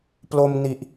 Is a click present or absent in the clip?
absent